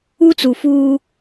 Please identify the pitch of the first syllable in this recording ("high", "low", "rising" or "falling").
high